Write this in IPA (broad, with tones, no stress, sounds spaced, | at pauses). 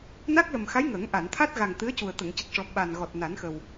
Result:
n a˦˥ k̚ l ə˨˩ m x a˧˥ j ŋ ə˨˩˦ ŋ ʔ a˨˩˨ n t̪ʰ a˦˥ t̚ ɣ a˨˩ ŋ t̪ ɨ˧˥ ə̯ c u˨˩ ə̯ t̪ ə˨˩˨ ŋ c ə˨˩ k̚ ʂ ɔ˨˩˦ ɓ a˨˩ n ɣ ɔ˨˩ t̚ n a˨˩˦ n x ə˨˩ w